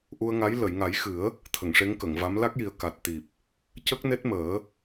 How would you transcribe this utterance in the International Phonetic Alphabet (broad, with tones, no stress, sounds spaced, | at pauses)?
ʔ u˧ ə̯ ŋ a˧˥ j l ə˨˩˨ j ŋ a˨˩˦ j x ɨ˨˩˦ ə̯ | t̪ʰ ə˨˩˨ ŋ ʂ e˧˥ ŋ k ə˨˩˨ ŋ v a˧˥ m l a˦˥ k̚ j i˨˩ ə̯ k a˨˩ t̚ t̪ i˨˩ p̚ | c ə˦˥ k̚ n e˦˥ t̚ m əː˨˩˦